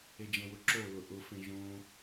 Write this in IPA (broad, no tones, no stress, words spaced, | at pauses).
ed͡ʒə̃wʊǁo lʊʔʊ fẽʒõ